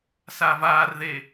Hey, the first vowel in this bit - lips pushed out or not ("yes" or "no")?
no